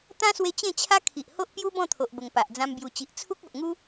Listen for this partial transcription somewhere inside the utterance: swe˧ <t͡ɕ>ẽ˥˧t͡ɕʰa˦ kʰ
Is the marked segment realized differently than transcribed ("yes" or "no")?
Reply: no